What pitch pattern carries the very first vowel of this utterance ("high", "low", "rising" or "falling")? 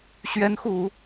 rising